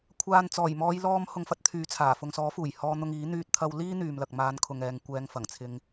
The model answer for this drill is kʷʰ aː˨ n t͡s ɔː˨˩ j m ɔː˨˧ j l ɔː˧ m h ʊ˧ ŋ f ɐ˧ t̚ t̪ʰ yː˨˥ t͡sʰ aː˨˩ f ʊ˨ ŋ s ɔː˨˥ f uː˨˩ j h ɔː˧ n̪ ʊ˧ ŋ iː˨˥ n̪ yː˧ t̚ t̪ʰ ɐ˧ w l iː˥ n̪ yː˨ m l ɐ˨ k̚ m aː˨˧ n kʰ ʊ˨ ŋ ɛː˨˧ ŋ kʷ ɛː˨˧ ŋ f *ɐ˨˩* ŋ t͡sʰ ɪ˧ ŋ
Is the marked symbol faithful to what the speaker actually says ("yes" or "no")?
yes